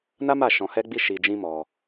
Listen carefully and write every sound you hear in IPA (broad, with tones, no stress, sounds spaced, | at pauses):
n a˦ m a˦˨ ʃ ɔ̃˧ h ɛ˦ ɡ͡b i˦ ʃ i˧ d͡ʒ ĩ˦ m ɔ˧